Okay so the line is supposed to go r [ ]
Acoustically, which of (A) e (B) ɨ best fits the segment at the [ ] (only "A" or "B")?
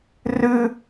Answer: B